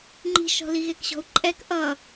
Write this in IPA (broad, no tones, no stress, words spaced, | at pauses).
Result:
ŋ͡ǃi̤ʃɔ̤li ɣekɕɔ̤u̯ǃʼɛk ʔʌ